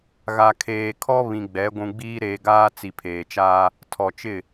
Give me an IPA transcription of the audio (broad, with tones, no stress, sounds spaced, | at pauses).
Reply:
ɣ a˨ kʰ eː˨ kʰ ɔ˦ β ĩ˨ ɡ͡b ɛ˨˦ ɡʷ ũ˨ ɡ͡b iː˦ ɾ eː˨ ɡ aː˦ t͡s i˨ pʰ eː˨ t͡ʃ aː˦ | tʰ ɔ˨ t͡ʃ ɪ˦˨